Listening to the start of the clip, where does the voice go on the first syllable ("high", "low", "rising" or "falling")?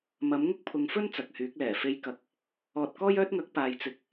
rising